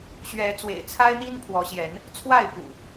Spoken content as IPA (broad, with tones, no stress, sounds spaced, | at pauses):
ɕ ɥ ɛ˨˦ t͡s w ḛ˨˩ ɪ̯ t͡sʰ a˦ ɪ̯ n̪ i˦ n pʰ w ɔ˨˦ ɕ j ɛ˨˦ n | t͡sʰ w a˥˨ ɪ̯ p ṵ˨˩